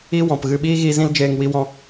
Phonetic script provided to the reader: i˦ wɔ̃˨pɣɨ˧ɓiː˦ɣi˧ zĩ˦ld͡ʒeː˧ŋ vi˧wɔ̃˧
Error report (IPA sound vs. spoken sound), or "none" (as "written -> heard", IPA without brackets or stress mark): v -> w